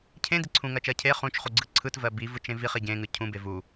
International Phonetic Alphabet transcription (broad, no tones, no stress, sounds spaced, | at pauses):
cʰ ẽ d i ǀʰ ũ ŋ ɜ t͡ʃ ɜ cʰ e χ ũ t͡ʃ χ u ɡ͡ǀ ɯ ǀʰ ɯ t v ɜ b i v ɯ t͡ʃ ẽ v i χ i ɟ ẽ ŋ ɯ cʰ ũ b e v u